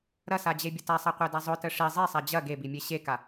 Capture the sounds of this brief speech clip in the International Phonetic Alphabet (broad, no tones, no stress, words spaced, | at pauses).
ɾɐsad͡ʑebʲə tasˤaqʷeda zˤʊtə ʂi zˤesˤa d͡ʑɐ ɡebimʲe ɕeka